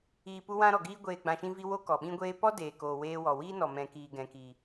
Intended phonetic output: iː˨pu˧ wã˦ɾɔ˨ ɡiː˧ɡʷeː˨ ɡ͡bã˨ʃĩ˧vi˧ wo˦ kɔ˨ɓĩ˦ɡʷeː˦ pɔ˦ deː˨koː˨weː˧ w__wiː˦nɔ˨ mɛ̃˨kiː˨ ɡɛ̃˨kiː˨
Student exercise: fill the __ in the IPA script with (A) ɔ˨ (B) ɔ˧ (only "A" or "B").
A